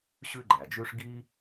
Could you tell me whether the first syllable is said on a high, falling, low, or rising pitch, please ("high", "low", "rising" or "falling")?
high